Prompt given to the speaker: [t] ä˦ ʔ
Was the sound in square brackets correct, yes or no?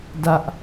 no